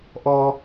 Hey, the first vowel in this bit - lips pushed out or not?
yes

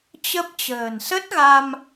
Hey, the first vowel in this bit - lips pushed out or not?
no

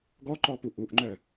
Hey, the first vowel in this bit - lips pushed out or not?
yes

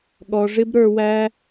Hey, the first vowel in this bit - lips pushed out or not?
yes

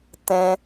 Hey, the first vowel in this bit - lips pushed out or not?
no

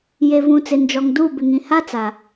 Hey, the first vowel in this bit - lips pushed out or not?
no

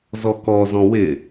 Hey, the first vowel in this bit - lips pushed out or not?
yes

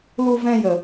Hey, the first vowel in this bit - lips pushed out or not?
yes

